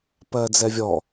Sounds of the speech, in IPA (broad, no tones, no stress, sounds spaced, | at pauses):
p ɜ d͡z ɛ vʲ ɔ